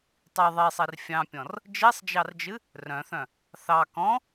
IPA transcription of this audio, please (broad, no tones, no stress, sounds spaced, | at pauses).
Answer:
tˤ i ðˤ i sˤ i r fʲ ɑ̃ pʲ ɔ̃ r | d͡ʒ i sˤ d͡ʒ ɑ r d͡ʒ ɨ | r œ̃ θ œ̃ | θ ɑ k ɔ̃